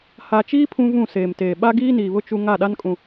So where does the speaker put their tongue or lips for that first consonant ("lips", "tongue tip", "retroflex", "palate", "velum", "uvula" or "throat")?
throat